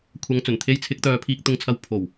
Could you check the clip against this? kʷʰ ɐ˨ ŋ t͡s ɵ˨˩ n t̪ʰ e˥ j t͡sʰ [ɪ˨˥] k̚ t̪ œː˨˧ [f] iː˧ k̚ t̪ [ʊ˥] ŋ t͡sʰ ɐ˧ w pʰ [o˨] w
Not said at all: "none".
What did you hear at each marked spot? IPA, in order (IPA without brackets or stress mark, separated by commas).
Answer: ɪ˨˥, pʰ, ʊ˧, o˨˩